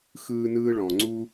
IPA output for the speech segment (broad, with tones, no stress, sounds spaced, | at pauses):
x ɯː˥ n ɯː˥ ɭ ɔ̃˩ ŋ͡ǀ u˥